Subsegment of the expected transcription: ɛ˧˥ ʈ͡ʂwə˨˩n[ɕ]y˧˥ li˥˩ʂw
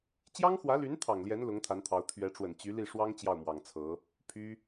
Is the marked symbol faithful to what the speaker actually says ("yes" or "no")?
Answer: no